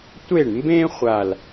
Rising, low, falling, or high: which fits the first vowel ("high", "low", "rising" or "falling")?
falling